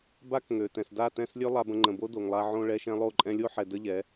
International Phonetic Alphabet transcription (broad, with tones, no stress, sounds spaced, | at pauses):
b a˥ k ŋ ø˩ t ɛ̃˩ s d a˥˩ t ɛ̃˥˩ s lʲ ø˥ lˠ a˧ b ə̃˧ ŋ͡ǃ ə̃˩ b o˥ d o˩ ŋ lˠ a˧ ʕ õ˧ ɭ ɛ˧ ʃ ɛ̃˧ lˠ o˥˩ ǃʼ ɛ̃˧ lʲ o˥ ħ ɛ˩ d ə˥ ʎ ɛ˩˥